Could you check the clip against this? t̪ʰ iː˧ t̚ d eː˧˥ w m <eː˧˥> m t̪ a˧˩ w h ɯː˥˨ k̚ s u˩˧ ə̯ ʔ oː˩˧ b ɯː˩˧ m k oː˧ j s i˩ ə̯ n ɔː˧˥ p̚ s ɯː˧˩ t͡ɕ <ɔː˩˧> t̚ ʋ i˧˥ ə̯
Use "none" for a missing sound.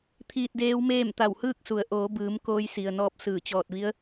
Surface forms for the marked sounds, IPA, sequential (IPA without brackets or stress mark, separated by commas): eː˥˨, ɔː˧˩